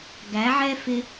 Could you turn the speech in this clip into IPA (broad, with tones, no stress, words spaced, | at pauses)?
ɡæ˨˦ʕɛ˦ fɪ˦